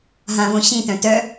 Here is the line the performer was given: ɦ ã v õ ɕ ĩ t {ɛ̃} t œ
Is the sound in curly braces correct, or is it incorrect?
incorrect